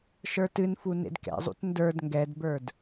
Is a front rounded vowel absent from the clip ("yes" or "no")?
yes